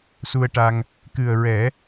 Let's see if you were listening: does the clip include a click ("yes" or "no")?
no